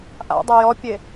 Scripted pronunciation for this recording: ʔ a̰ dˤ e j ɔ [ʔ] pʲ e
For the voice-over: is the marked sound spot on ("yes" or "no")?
no